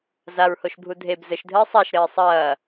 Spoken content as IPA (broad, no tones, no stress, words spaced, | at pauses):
zaɹhoʃbʱu dʱeb zɘʃdʱɘː sˤaʃ ɾɘːsˤɐː